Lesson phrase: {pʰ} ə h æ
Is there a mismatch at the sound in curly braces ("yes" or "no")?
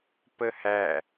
yes